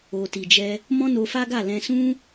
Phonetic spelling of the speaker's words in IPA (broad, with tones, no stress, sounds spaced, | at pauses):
o˨ t i˨ d͡ʒ ɛ˧ | m ɔ̃˦ n o˧ f a˦ ɡ a˦˨ l ɛ̃˧ s ũ˦